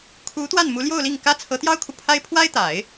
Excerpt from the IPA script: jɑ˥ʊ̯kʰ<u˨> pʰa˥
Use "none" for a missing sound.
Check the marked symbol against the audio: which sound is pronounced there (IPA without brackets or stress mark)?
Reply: u˨